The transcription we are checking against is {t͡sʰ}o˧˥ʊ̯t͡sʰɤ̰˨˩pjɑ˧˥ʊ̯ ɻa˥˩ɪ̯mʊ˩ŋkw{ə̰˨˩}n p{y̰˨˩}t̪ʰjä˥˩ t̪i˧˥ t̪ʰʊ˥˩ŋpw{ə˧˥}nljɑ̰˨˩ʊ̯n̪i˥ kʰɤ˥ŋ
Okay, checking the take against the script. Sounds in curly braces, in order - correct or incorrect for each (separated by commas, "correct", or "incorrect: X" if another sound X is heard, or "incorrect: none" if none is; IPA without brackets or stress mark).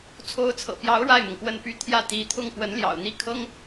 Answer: correct, incorrect: ə˥˩, incorrect: y˥, correct